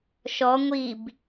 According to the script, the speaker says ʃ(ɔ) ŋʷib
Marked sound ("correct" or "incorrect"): correct